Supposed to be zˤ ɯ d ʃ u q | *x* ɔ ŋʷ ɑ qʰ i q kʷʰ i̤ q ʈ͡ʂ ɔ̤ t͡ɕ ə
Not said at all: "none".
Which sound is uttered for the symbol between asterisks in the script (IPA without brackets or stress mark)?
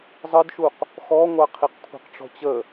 x